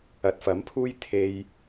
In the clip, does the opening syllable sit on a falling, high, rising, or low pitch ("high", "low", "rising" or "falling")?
rising